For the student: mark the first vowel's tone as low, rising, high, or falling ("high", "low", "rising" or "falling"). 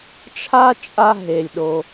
high